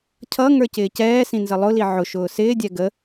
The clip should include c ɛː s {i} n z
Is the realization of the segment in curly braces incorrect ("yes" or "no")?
yes